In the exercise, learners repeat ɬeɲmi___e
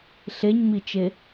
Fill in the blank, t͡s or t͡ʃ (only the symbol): t͡ʃ